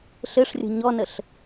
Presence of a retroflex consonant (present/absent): present